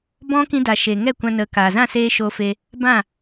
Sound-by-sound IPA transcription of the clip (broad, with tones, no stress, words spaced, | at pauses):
bɔ̃˦ kĩ˧da˨ʃe˨ŋɛ˦˨ kʷã˧nə˨˦kaː˨ zã˦˨seː˧ʃo˧fe˧ | bã˦˨